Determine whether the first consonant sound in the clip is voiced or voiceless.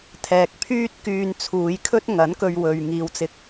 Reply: voiceless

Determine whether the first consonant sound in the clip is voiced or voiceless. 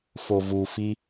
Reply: voiceless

